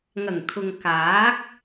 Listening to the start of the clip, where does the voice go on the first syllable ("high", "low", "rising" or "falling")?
low